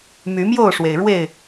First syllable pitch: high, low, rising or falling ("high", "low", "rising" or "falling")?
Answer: rising